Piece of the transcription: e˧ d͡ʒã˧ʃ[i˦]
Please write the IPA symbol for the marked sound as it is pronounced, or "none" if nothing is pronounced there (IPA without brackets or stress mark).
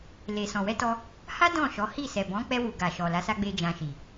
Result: i˨